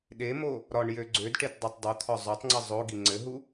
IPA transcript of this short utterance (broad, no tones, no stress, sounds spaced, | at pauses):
ɗ e m o | ɾ ɒ ɳ j ø ɡ͡ǀ ø d ʈ e t dˤ i tˤ dˤ u t̪ʰ ɒ zˤ ø tˤ ŋ͡ǀ ɘ zˤ o ɡ i ŋ͡ǀ ɘ ɦ u